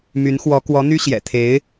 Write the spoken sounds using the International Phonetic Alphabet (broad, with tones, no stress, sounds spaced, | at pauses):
m y˧˥ n x w ɔ˧˥ k w ɔ˧˥ n̪ y˥ ɕ j ɛ̰˨˩ t̪ʰ e˧˥ ɪ̯